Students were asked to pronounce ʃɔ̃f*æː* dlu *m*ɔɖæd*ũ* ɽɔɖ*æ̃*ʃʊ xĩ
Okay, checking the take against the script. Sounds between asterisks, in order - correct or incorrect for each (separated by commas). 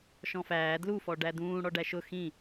correct, incorrect, incorrect, incorrect